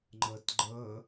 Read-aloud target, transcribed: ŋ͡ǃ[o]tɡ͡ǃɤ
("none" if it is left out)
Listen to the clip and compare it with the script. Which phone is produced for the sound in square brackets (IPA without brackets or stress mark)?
ɤ